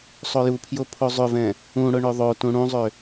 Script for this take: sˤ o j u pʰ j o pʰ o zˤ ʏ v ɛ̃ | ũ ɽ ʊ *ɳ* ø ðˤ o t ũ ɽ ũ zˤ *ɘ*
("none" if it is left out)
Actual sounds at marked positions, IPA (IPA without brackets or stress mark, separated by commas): ɳ, ø